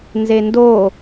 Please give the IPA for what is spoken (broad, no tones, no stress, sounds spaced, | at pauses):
n z e n d o